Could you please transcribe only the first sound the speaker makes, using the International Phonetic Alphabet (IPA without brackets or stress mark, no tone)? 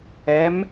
ɛ